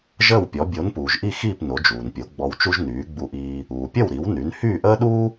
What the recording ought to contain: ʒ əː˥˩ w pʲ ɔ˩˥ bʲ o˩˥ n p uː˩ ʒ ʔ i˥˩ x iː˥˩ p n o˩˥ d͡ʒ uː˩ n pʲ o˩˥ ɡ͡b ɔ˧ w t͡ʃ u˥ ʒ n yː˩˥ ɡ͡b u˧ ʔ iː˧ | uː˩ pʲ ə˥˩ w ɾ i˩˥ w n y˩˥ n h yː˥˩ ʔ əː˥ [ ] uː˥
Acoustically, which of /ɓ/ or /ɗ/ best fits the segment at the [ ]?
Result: ɗ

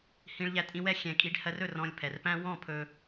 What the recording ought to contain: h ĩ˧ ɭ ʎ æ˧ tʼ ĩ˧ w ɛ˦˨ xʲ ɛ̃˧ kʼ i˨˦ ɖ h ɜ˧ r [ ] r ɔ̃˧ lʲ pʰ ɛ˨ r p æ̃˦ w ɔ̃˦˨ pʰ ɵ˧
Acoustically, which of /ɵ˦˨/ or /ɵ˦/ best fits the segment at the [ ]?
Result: ɵ˦˨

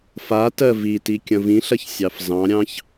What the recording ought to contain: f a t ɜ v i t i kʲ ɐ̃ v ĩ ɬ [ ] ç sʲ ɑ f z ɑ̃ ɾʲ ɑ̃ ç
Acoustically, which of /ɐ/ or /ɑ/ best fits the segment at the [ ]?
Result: ɐ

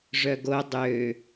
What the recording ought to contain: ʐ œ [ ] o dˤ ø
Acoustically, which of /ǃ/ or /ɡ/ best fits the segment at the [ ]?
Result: ɡ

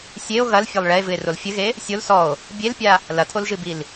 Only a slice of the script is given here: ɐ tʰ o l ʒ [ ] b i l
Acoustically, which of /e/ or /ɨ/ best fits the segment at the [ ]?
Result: ɨ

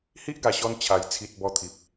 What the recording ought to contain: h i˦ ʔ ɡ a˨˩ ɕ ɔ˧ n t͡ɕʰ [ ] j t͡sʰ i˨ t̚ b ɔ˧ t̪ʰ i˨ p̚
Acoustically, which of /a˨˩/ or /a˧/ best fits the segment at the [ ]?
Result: a˨˩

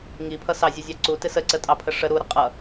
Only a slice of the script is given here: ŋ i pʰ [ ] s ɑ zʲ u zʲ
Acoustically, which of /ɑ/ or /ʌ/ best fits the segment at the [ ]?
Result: ʌ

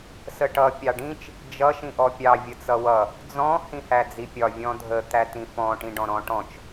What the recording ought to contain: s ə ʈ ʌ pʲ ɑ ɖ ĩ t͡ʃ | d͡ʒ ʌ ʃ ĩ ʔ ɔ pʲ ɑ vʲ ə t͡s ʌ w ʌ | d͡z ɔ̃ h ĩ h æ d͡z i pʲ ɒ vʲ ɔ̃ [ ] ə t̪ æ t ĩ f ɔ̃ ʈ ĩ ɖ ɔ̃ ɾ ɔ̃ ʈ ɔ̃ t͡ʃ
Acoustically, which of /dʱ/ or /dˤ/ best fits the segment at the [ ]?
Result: dʱ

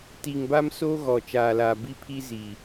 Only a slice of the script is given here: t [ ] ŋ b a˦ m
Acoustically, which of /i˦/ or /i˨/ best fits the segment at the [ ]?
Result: i˨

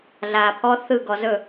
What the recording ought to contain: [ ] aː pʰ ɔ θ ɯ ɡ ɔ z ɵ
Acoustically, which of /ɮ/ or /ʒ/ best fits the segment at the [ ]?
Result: ɮ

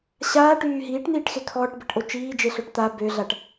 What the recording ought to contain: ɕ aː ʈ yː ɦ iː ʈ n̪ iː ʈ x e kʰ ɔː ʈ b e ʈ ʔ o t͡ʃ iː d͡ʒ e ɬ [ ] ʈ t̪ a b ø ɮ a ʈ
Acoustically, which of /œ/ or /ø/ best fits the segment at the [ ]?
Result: œ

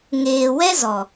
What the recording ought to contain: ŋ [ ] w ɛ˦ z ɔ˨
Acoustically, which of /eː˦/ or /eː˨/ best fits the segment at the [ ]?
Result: eː˨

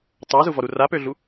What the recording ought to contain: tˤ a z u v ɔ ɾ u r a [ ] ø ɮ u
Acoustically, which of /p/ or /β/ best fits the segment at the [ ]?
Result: p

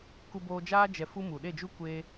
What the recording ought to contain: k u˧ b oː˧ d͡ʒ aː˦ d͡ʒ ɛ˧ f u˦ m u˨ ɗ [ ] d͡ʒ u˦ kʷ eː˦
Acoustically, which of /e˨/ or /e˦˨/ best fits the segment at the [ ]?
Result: e˦˨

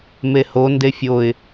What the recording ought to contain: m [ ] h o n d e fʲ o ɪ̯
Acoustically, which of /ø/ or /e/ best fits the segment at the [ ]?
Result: e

